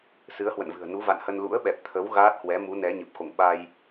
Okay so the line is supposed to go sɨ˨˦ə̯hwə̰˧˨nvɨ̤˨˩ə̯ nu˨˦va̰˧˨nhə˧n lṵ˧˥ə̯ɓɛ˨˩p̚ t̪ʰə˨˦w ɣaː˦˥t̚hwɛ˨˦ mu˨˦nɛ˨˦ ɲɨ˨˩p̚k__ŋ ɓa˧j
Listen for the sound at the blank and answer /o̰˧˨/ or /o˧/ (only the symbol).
o̰˧˨